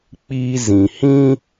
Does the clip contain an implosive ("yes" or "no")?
no